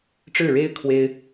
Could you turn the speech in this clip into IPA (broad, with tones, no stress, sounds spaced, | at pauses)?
ʈ͡ʂ ɻ̩˥˩ ɻ e˥ ɪ̯ kʰ w e˥ ɪ̯